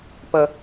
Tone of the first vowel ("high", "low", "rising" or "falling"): high